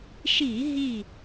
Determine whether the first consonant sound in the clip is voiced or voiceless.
voiceless